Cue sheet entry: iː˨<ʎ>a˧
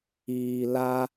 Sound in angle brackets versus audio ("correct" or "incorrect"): incorrect